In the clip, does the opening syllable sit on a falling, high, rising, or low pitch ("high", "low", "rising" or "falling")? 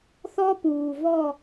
high